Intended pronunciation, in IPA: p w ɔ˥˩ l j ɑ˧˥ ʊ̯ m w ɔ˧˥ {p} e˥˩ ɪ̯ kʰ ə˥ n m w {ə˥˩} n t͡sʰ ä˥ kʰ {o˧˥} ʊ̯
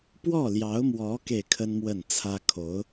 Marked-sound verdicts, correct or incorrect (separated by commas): incorrect, correct, correct